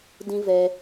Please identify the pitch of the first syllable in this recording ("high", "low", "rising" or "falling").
high